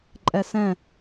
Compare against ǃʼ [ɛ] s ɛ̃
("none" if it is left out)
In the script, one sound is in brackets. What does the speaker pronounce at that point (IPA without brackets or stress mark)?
ɛ